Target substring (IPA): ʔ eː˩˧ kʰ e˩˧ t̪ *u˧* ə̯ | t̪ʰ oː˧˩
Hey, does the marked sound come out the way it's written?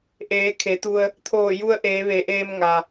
yes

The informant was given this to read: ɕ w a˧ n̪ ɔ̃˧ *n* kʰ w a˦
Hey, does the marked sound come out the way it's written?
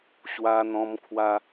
no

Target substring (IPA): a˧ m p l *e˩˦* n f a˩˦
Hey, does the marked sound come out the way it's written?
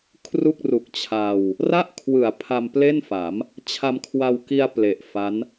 no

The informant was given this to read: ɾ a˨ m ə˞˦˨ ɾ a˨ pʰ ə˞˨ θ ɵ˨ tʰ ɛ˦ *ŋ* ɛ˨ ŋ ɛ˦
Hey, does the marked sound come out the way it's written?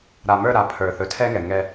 yes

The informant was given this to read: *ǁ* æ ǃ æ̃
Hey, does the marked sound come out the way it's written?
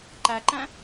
no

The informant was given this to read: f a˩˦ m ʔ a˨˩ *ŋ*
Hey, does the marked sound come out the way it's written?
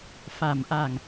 yes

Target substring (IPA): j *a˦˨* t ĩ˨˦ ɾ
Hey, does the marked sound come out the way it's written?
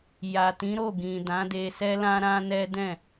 no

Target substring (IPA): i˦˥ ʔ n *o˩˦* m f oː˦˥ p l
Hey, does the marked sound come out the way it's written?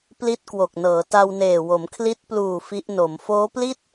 yes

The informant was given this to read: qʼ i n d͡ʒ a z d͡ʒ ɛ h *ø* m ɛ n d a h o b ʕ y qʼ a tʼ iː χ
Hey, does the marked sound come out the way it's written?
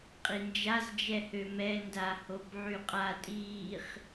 yes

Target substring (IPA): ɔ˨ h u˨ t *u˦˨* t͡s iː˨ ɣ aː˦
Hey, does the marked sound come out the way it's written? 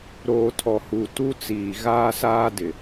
no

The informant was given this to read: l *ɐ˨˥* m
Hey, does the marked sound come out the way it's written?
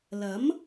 yes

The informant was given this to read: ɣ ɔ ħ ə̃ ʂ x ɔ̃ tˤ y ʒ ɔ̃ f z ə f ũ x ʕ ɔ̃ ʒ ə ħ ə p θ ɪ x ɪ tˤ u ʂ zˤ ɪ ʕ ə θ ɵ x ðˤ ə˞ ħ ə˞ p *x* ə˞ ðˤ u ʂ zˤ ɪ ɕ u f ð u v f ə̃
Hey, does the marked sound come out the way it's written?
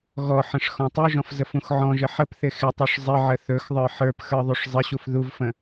yes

